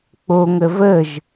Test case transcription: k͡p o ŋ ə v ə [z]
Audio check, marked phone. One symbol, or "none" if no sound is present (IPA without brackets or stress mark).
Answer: ʒ